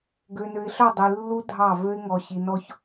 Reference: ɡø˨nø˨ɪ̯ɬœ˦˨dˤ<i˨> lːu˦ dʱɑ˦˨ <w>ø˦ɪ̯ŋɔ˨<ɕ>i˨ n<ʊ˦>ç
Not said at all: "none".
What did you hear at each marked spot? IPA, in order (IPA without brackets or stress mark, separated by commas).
i˨, v, ɕ, ɔ˦